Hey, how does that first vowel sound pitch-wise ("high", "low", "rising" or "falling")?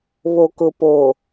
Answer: low